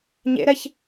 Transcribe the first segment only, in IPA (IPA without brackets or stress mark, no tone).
ɲ